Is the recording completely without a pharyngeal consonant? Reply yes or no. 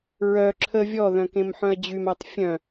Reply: no